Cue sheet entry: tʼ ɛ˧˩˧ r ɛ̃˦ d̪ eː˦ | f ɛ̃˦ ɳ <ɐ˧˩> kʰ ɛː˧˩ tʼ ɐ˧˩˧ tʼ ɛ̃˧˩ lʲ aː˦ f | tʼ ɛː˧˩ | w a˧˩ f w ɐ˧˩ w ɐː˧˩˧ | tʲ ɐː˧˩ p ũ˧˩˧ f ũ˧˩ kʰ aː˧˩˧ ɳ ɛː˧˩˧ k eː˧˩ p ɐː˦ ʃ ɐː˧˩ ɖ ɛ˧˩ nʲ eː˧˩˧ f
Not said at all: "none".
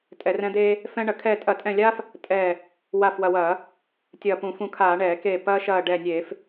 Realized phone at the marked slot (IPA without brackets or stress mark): ɐ˧˩˧